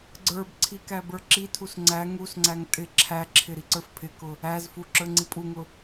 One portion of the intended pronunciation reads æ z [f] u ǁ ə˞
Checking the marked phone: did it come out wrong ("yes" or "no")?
no